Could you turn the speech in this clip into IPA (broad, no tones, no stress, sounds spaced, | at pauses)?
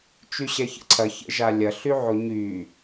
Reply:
t͡ʃ y ɕ ɛ ç ə̰ ǀʰ ɐ ç ə̰ ʒ a lʲ ɐ ɬ y ʕ o ɲ y